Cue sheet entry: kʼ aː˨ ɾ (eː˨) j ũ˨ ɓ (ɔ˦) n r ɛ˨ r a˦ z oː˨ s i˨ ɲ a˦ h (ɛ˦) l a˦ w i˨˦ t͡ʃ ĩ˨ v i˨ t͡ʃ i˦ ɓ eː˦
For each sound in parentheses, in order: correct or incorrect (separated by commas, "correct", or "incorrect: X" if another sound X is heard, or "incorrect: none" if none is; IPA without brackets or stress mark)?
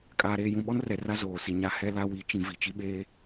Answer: correct, correct, correct